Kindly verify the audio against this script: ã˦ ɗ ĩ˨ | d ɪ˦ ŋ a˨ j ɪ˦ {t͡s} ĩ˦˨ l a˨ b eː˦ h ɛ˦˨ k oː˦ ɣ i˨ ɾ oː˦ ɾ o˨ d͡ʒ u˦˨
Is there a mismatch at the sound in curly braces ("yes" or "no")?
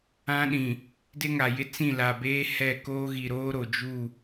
no